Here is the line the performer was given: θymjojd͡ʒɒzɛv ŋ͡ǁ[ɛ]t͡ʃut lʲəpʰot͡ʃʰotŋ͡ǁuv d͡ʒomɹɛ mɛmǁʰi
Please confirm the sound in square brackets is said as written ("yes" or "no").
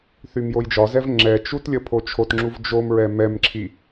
yes